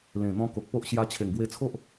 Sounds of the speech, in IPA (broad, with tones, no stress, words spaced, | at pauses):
lẽ˨˩n̪ɔ̃˧ ko˨k̚po˦ʔ ɕja˧t͡ɕʰe˨˩ŋ ɡwe˧t͡sʰo˦ʔ